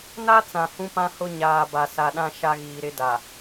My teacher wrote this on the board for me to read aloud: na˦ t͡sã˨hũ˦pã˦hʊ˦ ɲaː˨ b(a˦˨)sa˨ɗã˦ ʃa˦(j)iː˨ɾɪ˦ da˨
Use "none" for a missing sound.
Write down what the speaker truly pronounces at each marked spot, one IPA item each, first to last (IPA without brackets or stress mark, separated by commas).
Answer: a˨, ɣ